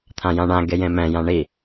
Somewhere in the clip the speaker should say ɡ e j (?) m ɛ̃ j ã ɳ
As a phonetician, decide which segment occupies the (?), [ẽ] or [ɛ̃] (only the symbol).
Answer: ẽ